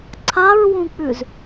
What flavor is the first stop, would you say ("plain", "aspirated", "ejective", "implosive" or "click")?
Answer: click